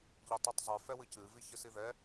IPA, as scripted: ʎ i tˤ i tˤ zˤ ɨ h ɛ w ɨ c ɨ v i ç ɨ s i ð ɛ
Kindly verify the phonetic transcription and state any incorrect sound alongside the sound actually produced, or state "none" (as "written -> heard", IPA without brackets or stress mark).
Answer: h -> f